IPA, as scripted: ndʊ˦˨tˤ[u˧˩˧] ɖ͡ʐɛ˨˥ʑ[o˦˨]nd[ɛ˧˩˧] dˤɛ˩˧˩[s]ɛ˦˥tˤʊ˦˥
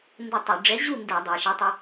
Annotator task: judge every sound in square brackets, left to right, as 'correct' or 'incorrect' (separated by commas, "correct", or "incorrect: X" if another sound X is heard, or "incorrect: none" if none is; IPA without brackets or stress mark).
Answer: correct, incorrect: u˦˨, correct, incorrect: ʃ